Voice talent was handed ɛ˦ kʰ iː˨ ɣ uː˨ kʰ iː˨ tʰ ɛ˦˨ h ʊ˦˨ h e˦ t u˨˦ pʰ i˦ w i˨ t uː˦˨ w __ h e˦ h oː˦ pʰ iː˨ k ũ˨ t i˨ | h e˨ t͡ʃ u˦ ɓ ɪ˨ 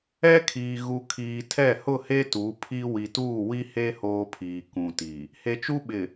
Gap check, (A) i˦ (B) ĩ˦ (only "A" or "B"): A